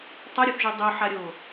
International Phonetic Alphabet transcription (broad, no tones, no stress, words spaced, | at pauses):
tˤaɾʲuθʒo dˤoħaɾʲo